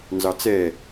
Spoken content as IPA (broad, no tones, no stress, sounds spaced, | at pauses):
n z ɑ t͡s ɛ